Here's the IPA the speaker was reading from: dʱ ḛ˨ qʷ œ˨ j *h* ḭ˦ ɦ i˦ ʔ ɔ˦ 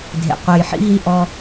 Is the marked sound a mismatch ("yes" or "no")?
yes